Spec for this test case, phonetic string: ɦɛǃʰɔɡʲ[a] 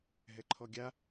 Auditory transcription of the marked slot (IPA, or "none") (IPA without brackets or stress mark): a